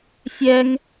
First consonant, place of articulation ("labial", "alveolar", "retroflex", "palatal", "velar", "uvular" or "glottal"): labial